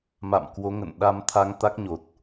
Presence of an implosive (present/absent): present